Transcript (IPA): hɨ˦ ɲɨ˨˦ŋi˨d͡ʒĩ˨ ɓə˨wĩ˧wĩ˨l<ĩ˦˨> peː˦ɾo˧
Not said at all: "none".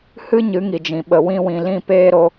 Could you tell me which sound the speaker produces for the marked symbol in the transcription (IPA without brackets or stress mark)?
ĩ˦˨